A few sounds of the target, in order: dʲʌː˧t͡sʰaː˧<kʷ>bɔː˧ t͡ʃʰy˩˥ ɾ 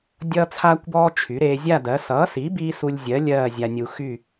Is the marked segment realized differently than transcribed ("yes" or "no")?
no